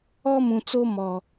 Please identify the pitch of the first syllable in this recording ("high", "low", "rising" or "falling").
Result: high